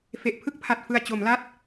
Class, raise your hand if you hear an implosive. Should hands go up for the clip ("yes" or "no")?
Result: no